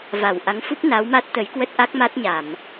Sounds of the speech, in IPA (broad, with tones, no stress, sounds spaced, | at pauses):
v a˧˩ w ʔ a˨˦ ŋ f u˦˥ p̚ n a˨˦ w m a˦˥ t̚ t̪ ə˨˦ j k w ə˦˥ t̚ ʔ a˦˥ k̚ m a˦˥ t̚ ɲ a˧˩˨ m